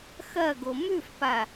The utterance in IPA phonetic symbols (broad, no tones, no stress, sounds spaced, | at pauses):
x ɐ ɡ o m ʉ f p a